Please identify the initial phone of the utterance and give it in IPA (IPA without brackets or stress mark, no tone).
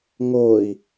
ŋ